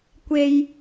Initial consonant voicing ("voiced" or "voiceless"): voiceless